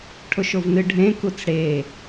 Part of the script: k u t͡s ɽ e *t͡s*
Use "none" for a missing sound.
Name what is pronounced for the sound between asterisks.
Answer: none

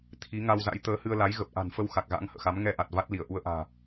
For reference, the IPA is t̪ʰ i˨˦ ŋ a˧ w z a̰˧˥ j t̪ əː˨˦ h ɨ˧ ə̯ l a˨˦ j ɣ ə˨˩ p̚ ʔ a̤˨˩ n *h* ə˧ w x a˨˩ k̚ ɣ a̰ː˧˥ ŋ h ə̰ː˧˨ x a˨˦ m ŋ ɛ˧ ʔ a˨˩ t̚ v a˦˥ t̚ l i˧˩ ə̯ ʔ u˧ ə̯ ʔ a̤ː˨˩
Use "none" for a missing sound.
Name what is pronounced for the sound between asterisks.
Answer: f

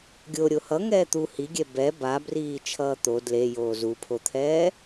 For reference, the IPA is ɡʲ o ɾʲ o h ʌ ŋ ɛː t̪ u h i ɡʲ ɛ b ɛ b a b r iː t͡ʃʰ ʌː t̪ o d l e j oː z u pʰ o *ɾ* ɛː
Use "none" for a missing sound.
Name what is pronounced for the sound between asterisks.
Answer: t̪ʰ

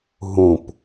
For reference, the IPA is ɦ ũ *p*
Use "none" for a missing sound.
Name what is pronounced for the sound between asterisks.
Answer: p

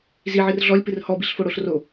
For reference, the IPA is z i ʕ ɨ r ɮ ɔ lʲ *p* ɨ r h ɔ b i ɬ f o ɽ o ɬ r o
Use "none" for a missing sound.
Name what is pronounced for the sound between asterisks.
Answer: p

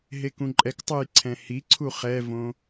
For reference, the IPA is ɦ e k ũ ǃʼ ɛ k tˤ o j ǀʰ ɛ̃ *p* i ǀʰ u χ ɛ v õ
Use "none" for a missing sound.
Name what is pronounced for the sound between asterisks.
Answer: h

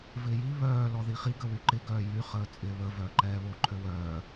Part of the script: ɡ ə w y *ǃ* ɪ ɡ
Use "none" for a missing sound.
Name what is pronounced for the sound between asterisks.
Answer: ǃ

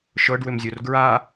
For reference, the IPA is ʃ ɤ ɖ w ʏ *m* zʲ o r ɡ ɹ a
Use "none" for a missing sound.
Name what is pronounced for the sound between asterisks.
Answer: m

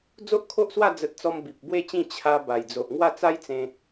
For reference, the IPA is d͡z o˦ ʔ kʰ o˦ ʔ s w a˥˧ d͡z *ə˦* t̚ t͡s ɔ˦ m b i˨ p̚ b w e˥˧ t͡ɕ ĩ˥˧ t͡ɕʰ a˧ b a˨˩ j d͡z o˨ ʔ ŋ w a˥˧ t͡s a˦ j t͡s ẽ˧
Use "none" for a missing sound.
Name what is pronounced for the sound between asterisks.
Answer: ə˦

